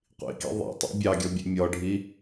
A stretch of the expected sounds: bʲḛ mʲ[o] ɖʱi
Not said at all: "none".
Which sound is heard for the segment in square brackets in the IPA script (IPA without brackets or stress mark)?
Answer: ɔ